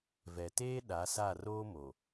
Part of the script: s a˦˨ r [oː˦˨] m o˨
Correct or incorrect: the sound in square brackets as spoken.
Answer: incorrect: oː˦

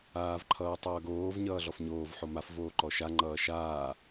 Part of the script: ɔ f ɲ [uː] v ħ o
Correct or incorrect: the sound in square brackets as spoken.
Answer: incorrect: oː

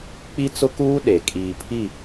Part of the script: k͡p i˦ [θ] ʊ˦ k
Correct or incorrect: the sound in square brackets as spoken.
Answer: incorrect: t͡s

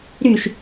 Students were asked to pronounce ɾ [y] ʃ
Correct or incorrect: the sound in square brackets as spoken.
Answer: correct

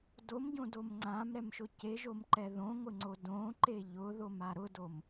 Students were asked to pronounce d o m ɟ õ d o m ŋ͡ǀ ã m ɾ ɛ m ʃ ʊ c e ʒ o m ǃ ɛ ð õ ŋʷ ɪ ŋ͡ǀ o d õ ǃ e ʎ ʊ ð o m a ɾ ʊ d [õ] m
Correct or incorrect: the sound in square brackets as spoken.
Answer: incorrect: o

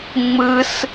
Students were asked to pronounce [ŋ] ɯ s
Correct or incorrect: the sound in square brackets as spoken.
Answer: incorrect: ŋ͡m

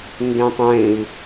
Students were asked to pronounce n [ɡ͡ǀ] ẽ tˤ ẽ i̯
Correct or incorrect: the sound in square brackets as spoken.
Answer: incorrect: d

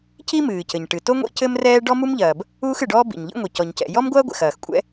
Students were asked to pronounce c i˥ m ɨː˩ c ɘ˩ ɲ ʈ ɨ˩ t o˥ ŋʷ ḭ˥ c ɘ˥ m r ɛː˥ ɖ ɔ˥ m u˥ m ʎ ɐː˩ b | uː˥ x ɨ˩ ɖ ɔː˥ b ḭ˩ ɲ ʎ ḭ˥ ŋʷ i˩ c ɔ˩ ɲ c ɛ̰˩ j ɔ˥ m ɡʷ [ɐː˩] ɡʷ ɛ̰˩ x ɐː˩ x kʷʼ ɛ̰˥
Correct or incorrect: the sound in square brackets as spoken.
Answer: incorrect: ɐː˥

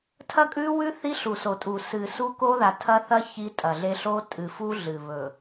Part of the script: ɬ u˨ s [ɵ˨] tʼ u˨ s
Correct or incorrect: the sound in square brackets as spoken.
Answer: incorrect: o˨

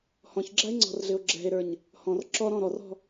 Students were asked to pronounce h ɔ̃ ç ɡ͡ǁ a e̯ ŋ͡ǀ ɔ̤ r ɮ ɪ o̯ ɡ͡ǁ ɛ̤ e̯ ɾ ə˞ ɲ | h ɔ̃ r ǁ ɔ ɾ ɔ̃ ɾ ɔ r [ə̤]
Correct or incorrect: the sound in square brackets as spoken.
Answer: incorrect: ɔ̤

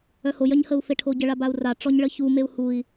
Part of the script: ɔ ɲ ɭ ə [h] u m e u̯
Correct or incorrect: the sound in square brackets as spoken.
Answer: incorrect: ç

